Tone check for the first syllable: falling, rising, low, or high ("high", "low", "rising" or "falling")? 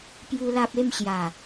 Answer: high